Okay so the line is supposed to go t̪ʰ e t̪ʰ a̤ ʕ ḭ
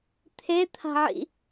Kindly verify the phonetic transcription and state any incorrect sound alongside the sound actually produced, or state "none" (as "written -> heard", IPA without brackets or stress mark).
none